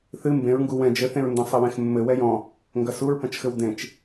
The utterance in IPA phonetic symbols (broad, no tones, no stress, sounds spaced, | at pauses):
θ ɨ m b ẽ ɹ ŋ ɡ u w ɛ̃ d͡ʒ ɘ θ ẽ ɹ n d ɐ̃ sˤ ɘ w ẽ x mː ɘ w ɛ j ɔ̃ | ŋ ɡ ɐ s u ɹ p ɐ̃ t͡ʃ x ɘ w d ẽ t͡ʃ